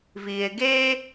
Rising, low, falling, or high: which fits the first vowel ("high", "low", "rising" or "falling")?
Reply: low